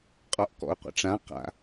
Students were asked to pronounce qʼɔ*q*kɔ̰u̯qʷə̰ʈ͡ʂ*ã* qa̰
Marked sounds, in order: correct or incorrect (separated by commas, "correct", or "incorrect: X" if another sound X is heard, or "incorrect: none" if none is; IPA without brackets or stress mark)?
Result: incorrect: ʔ, correct